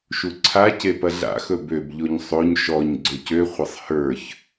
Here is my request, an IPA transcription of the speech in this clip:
ʃuǀʰace pɐɮa̰xɵ bøbʎoɲ sˤoɲ ʃɔɲ ɡ͡ǀɵcøχʷɐsˤ hə˞ç

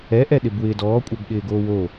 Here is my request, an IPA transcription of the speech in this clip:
ɛʔɛɗɪb wɪːdɔːkʷʼœbɠɪː ɡoːwo

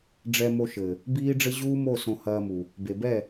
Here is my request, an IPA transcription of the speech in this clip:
ɖ͡ʐɛ˧mo˧ʃɘ˨ | biː˦ɖ͡ʐɘ˦ ʑuː˦mo˦˨ sõ˧hɐː˧mu˨ | be˨bɛ˦˨

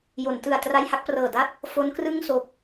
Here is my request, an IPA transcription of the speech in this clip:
jo˩˦ntɯ˨˩a̯ tra˧jha˥˩k̚prɤː˨˩da˥˩t̚ | fo˦˥nkrɯ˥˩ŋso˨˩k̚

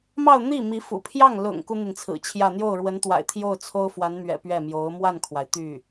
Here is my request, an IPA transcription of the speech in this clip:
mɑ˥˧ʊ̯n̪i˥˩mi˧˥fṵ˨˩ pʰjɑ˥˩ŋ lʊ̰˨˩ŋ ku˥n̪i˨nt͡sʰɹ̩˨˩t͡ɕʰjä˥˧ n̪jo˥˩ʊ̯ɻwə˧˥nt̪wa̰˨˩ɪ̯ t̪ʰjo˥˩ʊ̯t͡sʰo˥ʊ̯fwa˧˥nmɥɛ̰˨˩ pɥɛ˥˩mjo˧˥ʊ̯ mwa˥˩nkʰwa˩ɪ̯ t̪y˥˩

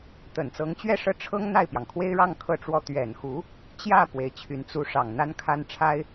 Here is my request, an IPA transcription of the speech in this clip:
t̪ə˨˩nt͡sɤ˧˥ŋt͡ɕɥɛ˥˧ʂɤ˥˩ ʈ͡ʂʰɤ˥ŋ n̪a˥˩ɪ̯pjɑ˩ŋkʰwe˥ɪ̯ɻɑ˥˧ŋ kʰɤ˥˧ʈ͡ʂwɔ˥˩ t̪ɥɛ˨˩nxu˧˥ | t͡ɕjä˥˩ pwe˧˥ɪ̯t͡ɕʰy˧˥n t͡su˧˥ʂɑ˨˩ŋ n̪a˥nkʰa˥n ʈ͡ʂʰa˥ɪ̯

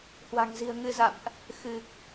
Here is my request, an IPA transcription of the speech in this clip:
hwa̤˨˩ŋzi̤˨˩ə̯ŋɨ˧za̰˧˨mʔ | xɨ˨˩k̚

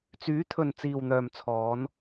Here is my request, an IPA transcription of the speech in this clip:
t͡syː˨˥t̪ʰɵ˨n t͡siː˨wn̪œː˨m t͡sʰɔː˨˧n

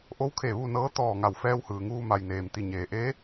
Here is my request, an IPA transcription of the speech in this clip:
ʔo˧˥wkʰe˧˩ ʋu˥˨nɤː˧˥ t̪ɔː˧˩ ŋa˧˩wfɛː˧whɯː˩ŋuː˧ ma˩jneː˩m t̪i˧˩ ɲeː˩ʔe˧˥

